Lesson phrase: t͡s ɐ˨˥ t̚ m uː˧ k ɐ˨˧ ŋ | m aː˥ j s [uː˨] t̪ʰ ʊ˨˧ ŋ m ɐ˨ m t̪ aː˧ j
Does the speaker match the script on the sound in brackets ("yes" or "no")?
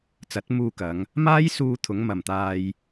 no